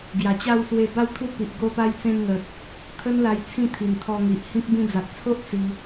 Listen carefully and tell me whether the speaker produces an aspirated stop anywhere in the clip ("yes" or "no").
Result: yes